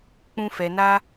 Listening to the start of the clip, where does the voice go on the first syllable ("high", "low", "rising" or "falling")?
high